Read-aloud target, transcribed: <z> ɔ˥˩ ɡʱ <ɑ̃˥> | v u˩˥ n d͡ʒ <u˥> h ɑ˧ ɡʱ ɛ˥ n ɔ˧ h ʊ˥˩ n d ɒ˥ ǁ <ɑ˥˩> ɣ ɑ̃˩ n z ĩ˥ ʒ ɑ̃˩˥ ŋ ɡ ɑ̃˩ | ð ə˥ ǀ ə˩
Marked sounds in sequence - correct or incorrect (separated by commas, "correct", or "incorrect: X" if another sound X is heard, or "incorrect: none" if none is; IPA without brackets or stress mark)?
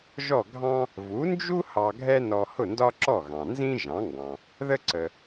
incorrect: ʒ, correct, correct, incorrect: ɔ˥˩